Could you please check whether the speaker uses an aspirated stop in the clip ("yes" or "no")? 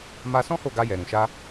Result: no